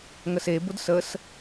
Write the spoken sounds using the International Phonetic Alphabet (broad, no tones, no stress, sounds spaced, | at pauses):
ŋ ə s e b ʊ d s ə s